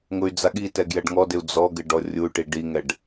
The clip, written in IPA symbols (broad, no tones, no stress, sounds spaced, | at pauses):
ŋ ʊ y̯ d͡z a ɠ i t ɛ ɡ j ɛ ɖ ŋ ɔ d ɪ u̯ d͡z ɔ ɡ ɪ ɖ ɔ rʲ u y̯ ʈ i ɖ i ŋ ɛ ɖ